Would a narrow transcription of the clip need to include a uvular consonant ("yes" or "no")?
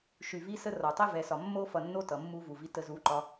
no